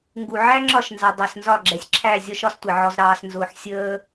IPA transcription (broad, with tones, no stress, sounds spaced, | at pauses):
ŋ ɡ u˨ ʕ æ˦ ŋ͡ǁ ɒ˦˨ ʃ n z ɑ˨ dˤ ɛ˨ s n z ɒ˦˨ ɡ͡ǁ ɛ˨ sʲ ǁʰ æ˦˨ zʲ ɒ˦ ʃ ɒ˦ s tʷ ɪ˨ ʕ ɔ˨ z ɾ ɑː˨ s n z ʊː˨ ħ sʲ əː˦